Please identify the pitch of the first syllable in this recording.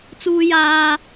high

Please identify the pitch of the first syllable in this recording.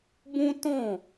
high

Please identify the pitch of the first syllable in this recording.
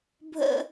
high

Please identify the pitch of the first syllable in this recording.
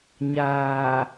low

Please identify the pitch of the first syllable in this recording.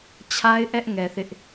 high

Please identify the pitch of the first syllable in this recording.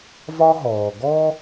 high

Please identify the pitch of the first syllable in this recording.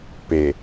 low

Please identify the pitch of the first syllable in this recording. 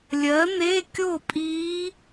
rising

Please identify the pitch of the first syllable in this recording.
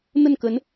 falling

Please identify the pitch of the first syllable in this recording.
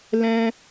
high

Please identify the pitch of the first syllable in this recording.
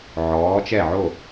rising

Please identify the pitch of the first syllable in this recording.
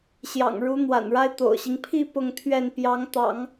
low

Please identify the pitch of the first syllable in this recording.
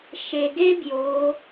low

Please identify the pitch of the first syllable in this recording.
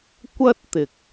high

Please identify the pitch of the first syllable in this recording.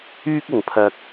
high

